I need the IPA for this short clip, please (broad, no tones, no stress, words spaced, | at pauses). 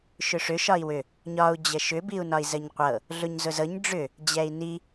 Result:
ʃʏʂʏ ʃɒi̯wʏ | ɲɒu̯ d͡ʑəʃʏ biu̯nɒi̯zəɲqʷɤ | ɮʊɲzʊzɤɲ ɖ͡ʐʏ | d͡ʑɛi̯ni